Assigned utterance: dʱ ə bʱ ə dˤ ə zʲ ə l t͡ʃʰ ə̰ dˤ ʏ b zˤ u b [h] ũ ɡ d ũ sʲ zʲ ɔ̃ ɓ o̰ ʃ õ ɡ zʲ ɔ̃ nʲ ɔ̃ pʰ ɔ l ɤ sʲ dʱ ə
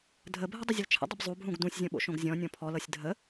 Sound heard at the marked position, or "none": ɦ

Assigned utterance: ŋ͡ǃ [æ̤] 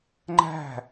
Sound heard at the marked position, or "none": æ̤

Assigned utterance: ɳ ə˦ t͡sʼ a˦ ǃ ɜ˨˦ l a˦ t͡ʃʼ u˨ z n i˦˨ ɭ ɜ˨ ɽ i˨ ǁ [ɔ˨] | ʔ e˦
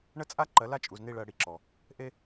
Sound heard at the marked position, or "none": ɔ˨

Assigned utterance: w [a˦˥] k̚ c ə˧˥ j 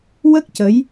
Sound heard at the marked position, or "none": ə˦˥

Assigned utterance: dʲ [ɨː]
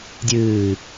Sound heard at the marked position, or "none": ɨː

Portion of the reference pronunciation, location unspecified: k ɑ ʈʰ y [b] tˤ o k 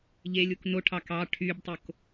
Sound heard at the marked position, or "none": b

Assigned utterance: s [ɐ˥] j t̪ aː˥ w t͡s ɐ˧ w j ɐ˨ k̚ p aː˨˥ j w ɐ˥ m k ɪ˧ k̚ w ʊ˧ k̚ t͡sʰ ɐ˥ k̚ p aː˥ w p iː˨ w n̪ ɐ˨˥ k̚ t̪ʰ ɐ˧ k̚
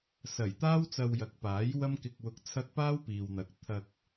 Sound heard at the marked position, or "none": ɐ˨˩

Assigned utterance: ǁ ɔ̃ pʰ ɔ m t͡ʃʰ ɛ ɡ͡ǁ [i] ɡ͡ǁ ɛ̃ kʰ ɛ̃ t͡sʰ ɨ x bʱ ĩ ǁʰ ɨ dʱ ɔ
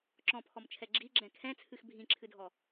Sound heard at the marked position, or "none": i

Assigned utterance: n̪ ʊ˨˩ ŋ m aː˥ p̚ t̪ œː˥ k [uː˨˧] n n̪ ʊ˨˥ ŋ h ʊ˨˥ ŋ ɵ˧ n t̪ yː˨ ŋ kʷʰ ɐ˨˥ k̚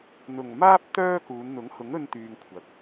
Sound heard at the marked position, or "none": uː˨˧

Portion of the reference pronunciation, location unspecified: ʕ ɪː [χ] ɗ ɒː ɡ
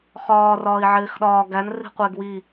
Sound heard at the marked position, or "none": x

